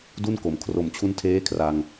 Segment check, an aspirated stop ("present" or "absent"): present